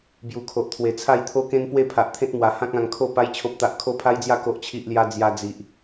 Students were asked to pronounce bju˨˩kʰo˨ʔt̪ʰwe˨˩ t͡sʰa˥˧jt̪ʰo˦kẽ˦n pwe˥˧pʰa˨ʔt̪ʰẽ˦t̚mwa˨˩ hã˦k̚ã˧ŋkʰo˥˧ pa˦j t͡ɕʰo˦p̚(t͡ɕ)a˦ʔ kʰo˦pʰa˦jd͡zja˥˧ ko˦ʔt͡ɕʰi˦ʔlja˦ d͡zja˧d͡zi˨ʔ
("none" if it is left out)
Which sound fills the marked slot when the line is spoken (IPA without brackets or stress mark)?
t̪